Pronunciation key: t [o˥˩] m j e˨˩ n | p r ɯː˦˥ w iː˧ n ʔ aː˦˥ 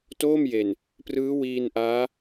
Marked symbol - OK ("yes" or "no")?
no